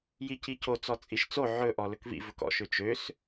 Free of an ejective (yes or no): no